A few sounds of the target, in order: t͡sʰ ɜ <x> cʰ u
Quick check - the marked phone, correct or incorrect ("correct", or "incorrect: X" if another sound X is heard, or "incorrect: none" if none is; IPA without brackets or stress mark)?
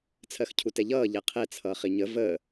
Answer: correct